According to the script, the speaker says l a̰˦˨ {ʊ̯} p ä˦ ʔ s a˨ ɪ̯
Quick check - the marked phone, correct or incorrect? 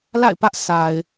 incorrect